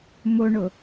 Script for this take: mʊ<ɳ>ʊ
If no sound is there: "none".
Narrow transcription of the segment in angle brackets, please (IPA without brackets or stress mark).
ɳ